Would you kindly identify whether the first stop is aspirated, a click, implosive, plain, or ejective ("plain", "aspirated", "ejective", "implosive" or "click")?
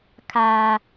aspirated